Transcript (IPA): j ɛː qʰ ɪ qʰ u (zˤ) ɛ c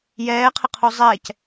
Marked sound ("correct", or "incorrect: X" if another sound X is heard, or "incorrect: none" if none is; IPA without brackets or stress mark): correct